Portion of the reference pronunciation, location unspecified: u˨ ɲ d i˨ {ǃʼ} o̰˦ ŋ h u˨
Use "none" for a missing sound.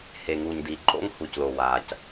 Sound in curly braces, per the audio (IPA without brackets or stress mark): ǃʼ